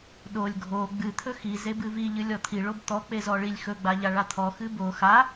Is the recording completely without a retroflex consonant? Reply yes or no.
no